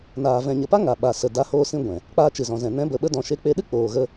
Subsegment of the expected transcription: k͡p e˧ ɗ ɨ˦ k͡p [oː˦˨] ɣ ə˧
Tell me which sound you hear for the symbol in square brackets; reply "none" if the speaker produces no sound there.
oː˨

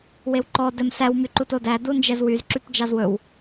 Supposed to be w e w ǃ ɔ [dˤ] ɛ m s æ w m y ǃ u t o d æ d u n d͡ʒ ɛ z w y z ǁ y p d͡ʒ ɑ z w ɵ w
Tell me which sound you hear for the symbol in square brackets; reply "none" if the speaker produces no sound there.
d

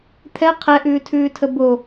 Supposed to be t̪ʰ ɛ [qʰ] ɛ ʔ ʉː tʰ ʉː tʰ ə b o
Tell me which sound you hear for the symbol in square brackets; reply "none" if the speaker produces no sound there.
qʰ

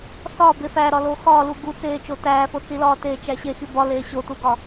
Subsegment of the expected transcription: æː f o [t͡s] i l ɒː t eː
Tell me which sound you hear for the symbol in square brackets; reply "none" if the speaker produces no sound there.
t͡s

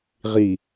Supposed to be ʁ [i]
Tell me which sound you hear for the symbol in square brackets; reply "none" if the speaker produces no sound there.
i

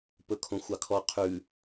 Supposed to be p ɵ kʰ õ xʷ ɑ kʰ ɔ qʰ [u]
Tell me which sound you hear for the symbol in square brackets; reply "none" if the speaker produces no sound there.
ʉ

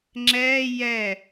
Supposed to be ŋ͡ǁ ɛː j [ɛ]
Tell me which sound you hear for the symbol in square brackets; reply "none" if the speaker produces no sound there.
ɛ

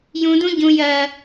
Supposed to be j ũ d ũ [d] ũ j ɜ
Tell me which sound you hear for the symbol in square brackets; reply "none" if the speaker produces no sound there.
ɟ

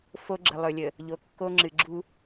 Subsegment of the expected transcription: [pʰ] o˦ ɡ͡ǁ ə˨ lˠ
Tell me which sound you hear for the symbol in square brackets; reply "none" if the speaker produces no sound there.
f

